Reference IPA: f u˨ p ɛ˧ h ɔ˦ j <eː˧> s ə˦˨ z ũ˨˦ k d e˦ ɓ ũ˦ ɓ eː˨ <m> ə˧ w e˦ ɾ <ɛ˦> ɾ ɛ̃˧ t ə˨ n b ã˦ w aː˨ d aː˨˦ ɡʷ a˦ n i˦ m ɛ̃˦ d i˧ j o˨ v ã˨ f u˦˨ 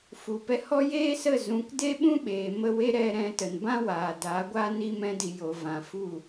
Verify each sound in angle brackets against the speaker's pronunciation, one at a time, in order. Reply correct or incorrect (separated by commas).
incorrect, correct, incorrect